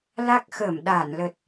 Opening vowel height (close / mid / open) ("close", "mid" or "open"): open